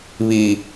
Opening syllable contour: low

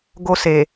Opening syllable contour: high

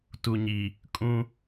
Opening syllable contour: low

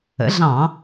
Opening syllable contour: rising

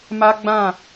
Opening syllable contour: high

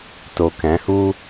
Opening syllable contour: low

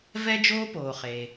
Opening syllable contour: high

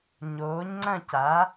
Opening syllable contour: rising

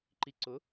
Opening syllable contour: low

